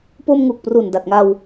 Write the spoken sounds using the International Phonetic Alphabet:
p o˧ m ŋ uː˨˩ k̚ p r u˨˩ n d a˨˩ t̚ ŋ a˧ w

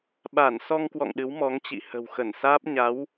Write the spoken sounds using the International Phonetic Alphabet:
ɓ a˧˩ n s ɔ˧ ŋ k w ɔ̰˧˨ ŋ ɗ ɨ˨˦ w m ɔ˨˦ ŋ t͡ɕ ḭ˧˨ h ə̤˨˩ w x ə˧˩ n s aː˦˥ p̚ ɲ a˨˦ w

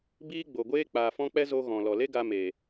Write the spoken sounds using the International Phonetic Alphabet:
b iː˦ ɡ͡b o˨ ɡʷ eː˦ k͡p aː˨ f ɔ̃˦ k͡p ɛ˦ z o˧ ɣ ɔ̃˨ l ɔ˨ l e˦ ɡ a˧ m eː˨

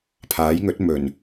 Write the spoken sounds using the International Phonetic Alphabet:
pʰ aː˨˥ j ŋ ɵ˨˥ t̚ m ɵ˨˩ n

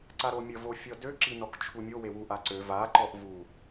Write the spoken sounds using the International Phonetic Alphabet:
ǀ a ɾ o mʲ ə v o fʲ ɔ d ø ǁ i n ɔ k t͡ʃʰ u mʲ o w e w u ʔ a ǀ ø v a ǃ ɔ ʔ v u

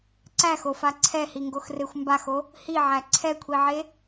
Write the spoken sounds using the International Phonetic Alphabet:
ǀ æ x o f a ǀʰ ɛ h i ŋ ɡ o x r e xʷ m b a x o | h i ʕ æ ǀʰ ɛ kʷʰ i ʕ e

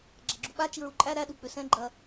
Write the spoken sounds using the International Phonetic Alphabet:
ɡ͡ǁ ɐ ɡ͡ǁ u ɓ a t͡ʃ i ɹ u ǃʼ æ ɾ æ ɗ u k͡p ʏ s ɛ̃ ɡ͡ǃ ɐ

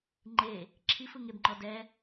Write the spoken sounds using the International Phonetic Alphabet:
ŋ͡ǃ e | ǁʰ i f ɯ ŋ e b ŋ͡ǃ ɔ d ɛ

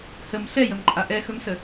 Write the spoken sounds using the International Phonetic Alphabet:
h ə m ɬ ɛ j ə m ǃʼ a ʔ ɛ x ɵ m s ə

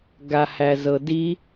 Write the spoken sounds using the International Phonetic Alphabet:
ɡ a h æ z ɤ d i

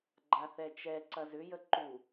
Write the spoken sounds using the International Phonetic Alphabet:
ɡ͡ǃ a θ ɛ t͡ʃ ɛ ǀ ɐ z ʏ j ə ǃ u

